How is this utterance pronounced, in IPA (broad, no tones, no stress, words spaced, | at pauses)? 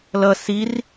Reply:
lʌ sir